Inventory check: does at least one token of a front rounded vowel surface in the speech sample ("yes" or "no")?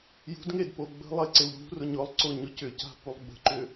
yes